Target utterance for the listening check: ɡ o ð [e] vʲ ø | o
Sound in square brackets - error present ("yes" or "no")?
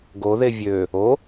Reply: no